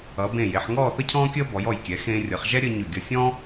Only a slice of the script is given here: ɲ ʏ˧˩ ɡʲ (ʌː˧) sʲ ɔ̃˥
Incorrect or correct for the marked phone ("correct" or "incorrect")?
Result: incorrect